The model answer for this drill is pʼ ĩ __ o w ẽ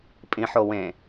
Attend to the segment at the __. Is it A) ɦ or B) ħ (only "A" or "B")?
B